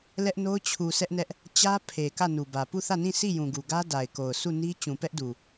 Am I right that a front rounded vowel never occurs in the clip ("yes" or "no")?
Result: yes